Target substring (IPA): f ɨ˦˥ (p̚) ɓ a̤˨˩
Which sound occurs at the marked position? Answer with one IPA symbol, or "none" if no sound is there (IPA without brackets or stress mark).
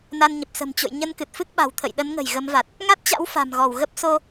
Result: k̚